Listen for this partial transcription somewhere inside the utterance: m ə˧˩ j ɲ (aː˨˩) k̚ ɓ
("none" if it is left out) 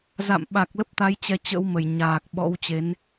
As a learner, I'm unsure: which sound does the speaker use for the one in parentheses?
aː˨˩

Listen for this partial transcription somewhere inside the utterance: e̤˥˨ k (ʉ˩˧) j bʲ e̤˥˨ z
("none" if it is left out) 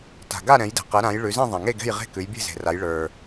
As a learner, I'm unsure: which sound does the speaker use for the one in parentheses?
ʉ˩˧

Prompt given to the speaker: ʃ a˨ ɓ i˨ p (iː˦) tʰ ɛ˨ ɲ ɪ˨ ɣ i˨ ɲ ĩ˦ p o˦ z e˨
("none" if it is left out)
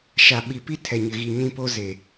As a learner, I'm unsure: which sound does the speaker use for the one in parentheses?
i˦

